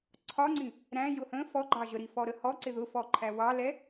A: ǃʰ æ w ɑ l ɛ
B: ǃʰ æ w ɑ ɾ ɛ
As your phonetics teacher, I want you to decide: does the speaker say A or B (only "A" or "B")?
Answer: A